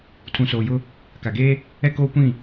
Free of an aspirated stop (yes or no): no